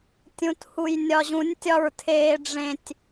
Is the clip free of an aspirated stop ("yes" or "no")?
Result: no